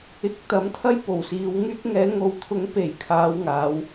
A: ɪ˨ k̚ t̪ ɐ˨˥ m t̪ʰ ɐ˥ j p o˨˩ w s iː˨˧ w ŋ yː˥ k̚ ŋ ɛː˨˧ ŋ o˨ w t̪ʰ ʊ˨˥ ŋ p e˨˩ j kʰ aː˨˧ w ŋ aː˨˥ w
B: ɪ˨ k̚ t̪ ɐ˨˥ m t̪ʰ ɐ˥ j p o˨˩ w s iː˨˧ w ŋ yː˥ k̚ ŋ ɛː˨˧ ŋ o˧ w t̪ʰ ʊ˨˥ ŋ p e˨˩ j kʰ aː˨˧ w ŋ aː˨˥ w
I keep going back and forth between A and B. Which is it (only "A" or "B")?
A